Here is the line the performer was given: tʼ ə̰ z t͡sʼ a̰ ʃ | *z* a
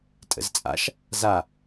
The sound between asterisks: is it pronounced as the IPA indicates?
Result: yes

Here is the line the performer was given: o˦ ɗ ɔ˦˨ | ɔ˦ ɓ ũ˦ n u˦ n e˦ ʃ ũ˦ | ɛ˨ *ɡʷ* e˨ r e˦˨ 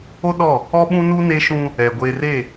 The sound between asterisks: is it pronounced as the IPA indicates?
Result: yes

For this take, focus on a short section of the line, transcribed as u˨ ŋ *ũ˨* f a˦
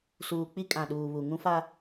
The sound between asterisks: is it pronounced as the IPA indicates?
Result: no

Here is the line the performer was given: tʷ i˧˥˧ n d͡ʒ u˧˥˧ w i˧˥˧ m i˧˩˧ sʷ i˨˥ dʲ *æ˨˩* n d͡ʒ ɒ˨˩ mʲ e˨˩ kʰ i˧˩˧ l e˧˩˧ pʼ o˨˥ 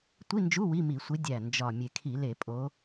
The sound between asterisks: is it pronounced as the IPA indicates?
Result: yes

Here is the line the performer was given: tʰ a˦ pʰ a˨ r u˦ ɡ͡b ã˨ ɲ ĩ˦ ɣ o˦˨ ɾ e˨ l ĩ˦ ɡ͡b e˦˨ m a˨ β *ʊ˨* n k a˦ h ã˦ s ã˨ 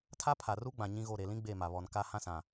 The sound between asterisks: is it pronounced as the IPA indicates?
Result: no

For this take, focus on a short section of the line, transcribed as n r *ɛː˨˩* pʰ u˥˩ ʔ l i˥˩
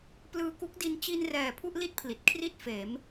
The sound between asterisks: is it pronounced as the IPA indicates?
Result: yes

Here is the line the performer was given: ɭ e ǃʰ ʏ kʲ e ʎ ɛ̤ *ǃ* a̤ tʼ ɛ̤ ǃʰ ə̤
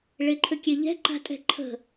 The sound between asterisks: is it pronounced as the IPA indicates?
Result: yes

